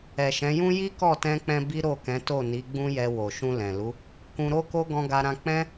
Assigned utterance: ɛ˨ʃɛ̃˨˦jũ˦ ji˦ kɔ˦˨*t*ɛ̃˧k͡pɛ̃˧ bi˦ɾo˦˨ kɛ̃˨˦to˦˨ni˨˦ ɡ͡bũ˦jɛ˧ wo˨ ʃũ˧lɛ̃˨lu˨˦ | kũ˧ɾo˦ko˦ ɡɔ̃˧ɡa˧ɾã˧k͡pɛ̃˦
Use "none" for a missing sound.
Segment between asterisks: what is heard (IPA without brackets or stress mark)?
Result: t